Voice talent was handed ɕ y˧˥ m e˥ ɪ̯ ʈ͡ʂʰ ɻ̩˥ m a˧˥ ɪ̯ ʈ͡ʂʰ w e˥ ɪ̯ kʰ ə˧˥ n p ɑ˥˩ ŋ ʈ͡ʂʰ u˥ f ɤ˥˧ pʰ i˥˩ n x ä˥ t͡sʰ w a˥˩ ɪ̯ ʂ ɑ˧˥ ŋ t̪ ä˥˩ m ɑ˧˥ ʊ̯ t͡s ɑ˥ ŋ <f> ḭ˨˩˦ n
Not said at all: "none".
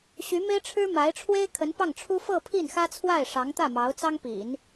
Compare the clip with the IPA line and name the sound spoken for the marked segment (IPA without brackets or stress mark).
p